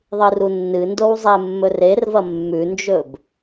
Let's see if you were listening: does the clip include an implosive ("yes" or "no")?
no